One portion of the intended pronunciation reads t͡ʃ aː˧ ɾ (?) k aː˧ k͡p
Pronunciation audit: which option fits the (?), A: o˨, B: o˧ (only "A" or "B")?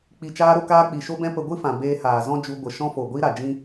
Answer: B